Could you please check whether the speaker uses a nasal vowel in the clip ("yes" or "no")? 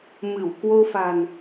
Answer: no